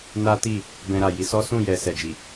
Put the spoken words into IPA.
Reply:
n a˦ t i˦˨ | b ɛ̃˧ ɾ a˨ j i˨˦ s ɔ˦ s ũ˦˨ j ɛ˨ s ɛ˨ d͡ʒ i˨

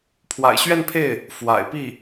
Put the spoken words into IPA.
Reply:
pʰ w a̰˨˩ ɪ̯ ɕ ɥ ɛ˥˧ n pʰ e˥˩ ɪ̯ | f w a̰˨˩ ɪ̯ p i˥˩

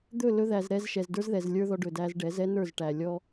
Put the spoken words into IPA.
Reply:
d̪ ɵ˦˨ l ɵ˧ ð æ˨ z ɾ ɛ˧ z ʃ ɛ˨ z d ə˞˦ z ð ɛ˨ z lʲ ə˞˦ ð ɔ˧ ɖ ɵ˨ d æ˧ z ɖ ɛ˨˦ z ɛ˦ n ə˞˦˨ z ʈ æ˨ lʲ ɔ˦

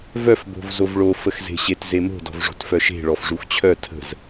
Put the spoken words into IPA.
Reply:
v œ f b o̤ v z o v ɭ o f ə x z e̤ ɕ e t z e m o̤ d ɔ̤ v ʐ o̤ t f œ ʃ e̤ ɭ ɔ f ʐ u x t͡ɕʰ œ tʰ ə̤ z

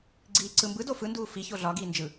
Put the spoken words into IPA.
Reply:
ɡ͡ǀ iː ǀ ɯ m b ɯ d o f ɯ n d uː f i ç o ɮ ɒ ɡ iː n d͡ʒ ɯ

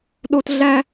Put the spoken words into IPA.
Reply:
ɗ o˥ t ɮ æ˥

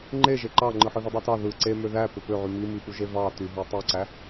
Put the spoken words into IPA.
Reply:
ŋ͡ǃ e ʒ e ǃ ɑ ŋ͡ǃ ɯ ħ ɯ ð u dˤ y t ɑ ð ɯ ǀ e m ø ð æ p ø p ø ʕ y m i m i p u ʒ e v ɑ t y ɦ ø tˤ i ǀ æ

